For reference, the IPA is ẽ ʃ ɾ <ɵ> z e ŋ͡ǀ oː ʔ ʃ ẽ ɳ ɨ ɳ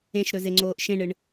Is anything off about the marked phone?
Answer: no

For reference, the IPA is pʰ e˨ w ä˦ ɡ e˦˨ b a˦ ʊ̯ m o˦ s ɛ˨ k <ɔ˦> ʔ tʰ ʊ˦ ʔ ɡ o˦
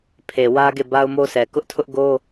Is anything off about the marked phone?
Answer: yes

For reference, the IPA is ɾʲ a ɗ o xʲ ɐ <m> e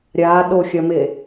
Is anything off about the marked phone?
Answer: no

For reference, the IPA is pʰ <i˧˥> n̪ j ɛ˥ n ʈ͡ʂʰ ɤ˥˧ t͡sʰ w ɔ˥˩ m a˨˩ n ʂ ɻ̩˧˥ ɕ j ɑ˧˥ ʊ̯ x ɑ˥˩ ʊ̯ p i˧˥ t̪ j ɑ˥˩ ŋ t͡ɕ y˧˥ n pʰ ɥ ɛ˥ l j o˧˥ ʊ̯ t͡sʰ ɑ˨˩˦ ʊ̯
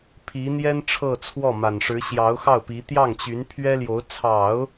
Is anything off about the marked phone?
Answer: no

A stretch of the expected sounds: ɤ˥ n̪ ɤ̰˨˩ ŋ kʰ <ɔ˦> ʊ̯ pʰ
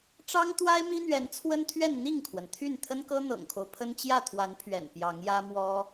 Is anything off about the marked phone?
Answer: yes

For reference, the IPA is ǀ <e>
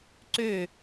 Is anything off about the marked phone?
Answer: yes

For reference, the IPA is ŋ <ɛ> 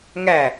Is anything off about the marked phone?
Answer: yes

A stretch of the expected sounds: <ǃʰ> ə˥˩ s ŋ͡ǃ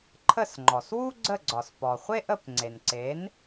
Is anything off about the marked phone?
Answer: no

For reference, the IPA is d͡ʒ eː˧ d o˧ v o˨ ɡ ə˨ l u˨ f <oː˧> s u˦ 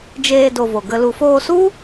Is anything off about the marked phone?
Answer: no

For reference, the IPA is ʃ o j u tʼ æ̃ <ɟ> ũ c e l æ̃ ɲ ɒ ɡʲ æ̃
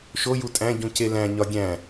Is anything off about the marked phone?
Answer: no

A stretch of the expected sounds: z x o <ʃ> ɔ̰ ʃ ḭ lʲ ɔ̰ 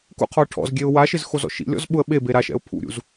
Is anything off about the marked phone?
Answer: yes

